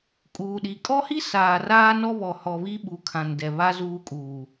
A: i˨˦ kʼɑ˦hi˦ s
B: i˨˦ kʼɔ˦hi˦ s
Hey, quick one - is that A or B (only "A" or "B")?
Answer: B